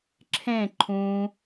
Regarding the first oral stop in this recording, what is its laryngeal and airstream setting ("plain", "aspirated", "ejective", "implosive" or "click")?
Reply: click